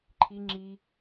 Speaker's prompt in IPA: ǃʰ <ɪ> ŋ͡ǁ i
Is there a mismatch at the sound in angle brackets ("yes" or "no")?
yes